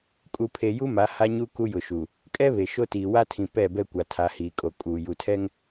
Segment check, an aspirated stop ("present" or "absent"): present